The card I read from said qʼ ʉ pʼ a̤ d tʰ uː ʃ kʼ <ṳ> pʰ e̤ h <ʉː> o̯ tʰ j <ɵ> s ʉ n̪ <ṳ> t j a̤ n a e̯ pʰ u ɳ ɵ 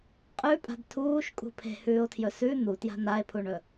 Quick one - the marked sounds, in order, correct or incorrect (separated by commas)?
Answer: correct, correct, correct, incorrect